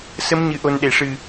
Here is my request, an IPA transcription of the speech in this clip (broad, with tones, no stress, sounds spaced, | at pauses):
s ə˧˥ m ɲ ɨ˨˩ ʔ o˨˩ n ɗ e˨˩˨ ʂ ɨ˨˩